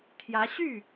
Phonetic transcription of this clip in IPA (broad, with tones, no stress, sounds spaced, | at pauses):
t̪ʰ j ä˧˥ ɕ y˥˩